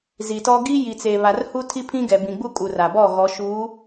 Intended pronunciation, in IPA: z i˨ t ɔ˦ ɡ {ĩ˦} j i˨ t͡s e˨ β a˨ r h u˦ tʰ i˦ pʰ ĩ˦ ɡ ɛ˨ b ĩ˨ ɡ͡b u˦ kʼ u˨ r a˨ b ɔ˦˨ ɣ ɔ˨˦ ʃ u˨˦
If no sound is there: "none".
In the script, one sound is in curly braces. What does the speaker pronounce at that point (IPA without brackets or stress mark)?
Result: i˦